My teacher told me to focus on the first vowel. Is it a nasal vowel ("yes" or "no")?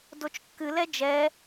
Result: no